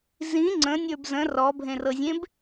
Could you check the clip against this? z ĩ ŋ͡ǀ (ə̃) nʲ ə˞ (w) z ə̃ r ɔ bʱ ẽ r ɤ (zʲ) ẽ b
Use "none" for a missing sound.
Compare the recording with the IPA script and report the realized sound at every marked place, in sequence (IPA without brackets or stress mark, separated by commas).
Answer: ə̃, b, zʲ